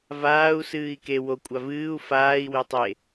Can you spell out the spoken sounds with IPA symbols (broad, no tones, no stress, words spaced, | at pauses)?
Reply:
vaːu̯ sɨːi̯ke wo kʷʼavɨːu̯ faːi̯ wetˤe